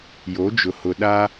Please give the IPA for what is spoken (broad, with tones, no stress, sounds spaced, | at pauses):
j o˨˦ d͡ʒ ʊ˨ h ʊ˨ ɗ a˦